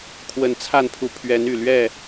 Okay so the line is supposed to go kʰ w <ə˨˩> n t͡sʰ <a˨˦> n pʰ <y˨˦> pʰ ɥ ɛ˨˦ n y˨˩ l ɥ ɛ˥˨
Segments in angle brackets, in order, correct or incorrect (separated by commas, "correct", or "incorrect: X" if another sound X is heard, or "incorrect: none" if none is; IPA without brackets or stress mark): correct, incorrect: a˥˨, incorrect: u˨˦